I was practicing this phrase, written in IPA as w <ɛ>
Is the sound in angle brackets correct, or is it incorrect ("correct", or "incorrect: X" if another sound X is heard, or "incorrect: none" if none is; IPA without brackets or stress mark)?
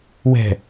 incorrect: ɛ̤